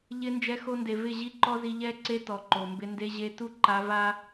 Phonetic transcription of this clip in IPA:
ʎ ɪ˧ n d͡ʒ ɛ˧ x o˧ n d e˨ v ɪ˦˨ ʑ i˦ ǃ ɔ˦ z i˧ ʎ ɛ˦ ǀ e˦ t ɔ˨ ǃ o˨ m b ɪ˧ n d e˧ ʑ e˧ t u˦ ǃ a˧ v a˦

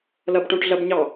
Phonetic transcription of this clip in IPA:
l ɐ b ʈ õ ʈ ɮ ɐ b ɲ ɑ

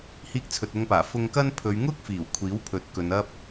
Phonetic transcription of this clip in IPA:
h iː˧ k̚ t͡sʰ ɵ˨ t̚ ʊ˧ ŋ p aː˨˩ f ʊ˧ ŋ k ɐ˥ n pʰ ɵ˨˧ ɥ ŋ ʊ˥ k̚ f iː˨˩ w kʷʰ iː˨˥ w pʰ ɵ˨˥ t̚ k ɵ˨˧ n ɐ˥ p̚

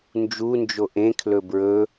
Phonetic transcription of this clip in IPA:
n d͡ʒ u n d͡ʒ o ʔ ẽ kʰ l ɵ b ɹ ɵ

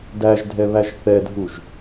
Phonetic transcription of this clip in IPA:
d æ ʒ dʱ ɛ β æ ʒ θ ɛ dʱ u ʒ

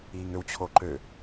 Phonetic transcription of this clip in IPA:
iː ŋ ø w t͡ɕʰ o ǃ ø

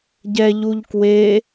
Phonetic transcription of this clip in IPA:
ɟ ɛ ʎ u ʎ k w e

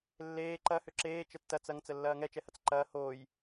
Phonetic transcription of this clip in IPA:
lː eː ǃ ɐ h ʏ ǁ eː t͡ʃ ə tː ɐ t͡s ɐ ŋ t͡s ə lː ɐː ŋ ɛ t͡ʃ ɛ h ɐ t͡s ǃ ɐː h oː j

